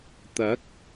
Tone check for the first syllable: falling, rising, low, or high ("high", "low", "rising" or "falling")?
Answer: rising